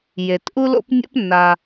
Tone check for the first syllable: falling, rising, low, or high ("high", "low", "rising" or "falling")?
low